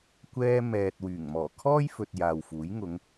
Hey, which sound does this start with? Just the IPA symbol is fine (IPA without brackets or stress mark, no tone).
kʷ